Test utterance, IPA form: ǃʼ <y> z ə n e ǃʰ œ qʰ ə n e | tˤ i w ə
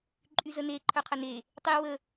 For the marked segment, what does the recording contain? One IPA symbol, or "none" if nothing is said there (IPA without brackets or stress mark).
y